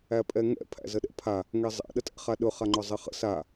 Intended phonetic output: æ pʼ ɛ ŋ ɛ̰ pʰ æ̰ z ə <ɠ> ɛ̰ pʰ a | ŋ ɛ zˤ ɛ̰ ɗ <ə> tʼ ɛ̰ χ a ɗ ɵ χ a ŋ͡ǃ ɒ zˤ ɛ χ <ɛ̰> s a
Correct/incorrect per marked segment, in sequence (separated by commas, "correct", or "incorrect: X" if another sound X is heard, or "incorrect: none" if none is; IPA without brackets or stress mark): incorrect: ɗ, correct, incorrect: ə̰